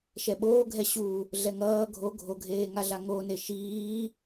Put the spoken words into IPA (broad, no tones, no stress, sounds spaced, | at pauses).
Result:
ʃ ɛ ɓ oː ɡʱ ɛ ɕ u | ɮ ɛ ŋ ʌː ɡʱ o ɡʱ o ɡʱ eː ŋ a ɮ a ŋ o n e ʃ iː